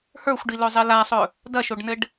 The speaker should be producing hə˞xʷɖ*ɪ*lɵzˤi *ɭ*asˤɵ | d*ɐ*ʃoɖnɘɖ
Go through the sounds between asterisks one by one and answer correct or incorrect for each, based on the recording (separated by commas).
incorrect, incorrect, correct